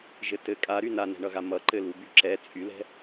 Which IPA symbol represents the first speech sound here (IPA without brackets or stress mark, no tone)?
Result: ʒ